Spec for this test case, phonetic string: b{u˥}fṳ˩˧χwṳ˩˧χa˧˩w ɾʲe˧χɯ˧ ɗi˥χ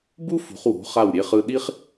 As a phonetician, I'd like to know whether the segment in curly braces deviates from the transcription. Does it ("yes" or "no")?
no